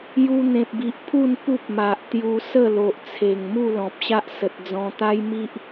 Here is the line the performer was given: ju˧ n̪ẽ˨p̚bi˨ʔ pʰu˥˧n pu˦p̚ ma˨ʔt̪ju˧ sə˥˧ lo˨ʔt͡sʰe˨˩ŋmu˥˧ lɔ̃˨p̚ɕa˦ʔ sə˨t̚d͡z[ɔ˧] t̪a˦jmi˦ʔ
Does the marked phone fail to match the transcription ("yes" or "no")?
yes